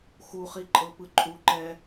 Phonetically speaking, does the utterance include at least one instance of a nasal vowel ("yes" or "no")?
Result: no